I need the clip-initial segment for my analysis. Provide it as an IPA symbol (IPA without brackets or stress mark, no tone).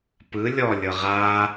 p